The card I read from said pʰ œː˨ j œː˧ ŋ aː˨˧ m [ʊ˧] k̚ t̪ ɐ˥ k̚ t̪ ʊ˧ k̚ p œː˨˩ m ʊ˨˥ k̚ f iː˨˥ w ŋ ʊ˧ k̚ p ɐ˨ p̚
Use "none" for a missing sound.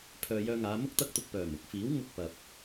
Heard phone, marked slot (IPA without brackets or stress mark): ʊ˥